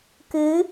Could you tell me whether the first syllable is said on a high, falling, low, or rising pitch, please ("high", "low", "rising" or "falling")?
rising